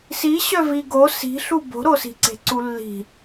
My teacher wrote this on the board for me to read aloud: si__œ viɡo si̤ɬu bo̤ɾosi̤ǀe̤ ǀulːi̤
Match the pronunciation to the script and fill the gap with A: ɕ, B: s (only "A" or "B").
A